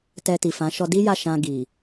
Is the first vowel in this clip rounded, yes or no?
no